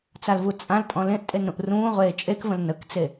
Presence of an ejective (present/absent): present